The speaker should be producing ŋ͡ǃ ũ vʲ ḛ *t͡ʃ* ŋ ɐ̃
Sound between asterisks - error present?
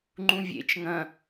no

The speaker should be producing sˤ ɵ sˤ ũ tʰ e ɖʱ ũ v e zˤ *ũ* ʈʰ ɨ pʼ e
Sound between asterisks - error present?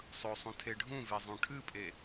no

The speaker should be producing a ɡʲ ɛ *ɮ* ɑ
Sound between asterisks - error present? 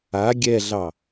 no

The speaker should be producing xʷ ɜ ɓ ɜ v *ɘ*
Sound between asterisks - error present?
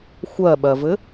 no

